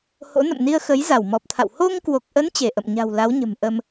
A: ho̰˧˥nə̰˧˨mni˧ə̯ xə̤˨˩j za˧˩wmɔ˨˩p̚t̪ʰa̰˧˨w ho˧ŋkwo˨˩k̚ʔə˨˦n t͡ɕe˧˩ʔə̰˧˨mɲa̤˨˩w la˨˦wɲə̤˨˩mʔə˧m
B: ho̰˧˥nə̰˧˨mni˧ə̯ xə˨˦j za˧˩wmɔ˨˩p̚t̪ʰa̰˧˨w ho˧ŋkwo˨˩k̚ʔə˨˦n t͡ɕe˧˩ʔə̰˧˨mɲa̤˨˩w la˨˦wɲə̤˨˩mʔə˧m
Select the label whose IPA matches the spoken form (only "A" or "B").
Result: B